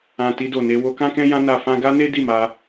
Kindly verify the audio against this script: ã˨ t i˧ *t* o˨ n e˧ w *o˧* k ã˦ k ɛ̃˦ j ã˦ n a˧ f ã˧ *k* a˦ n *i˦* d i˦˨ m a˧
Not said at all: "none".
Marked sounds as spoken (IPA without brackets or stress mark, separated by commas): d, o˧, ɡ, e˦